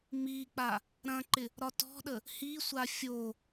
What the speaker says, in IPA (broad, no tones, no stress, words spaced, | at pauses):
mik͡pa | ɾɐ̃ǃɪ | ɾɒtɔ̤ɗə | hisʷa fʲo